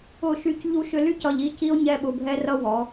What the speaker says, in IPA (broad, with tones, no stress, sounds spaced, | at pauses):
ʊ˦˨ ʃ y˦ c ʎ u˧ ʃ ʏ˧ l y˦ c ʌ˧ ʎ i˦ c i˦ o̯ ɲ ɛ˦ ɓ ʊ˧ bʱ ɛ˦ r ʌ˦ w ɔ˨˦